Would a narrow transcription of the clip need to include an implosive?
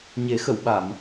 yes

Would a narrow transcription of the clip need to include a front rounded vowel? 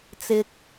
no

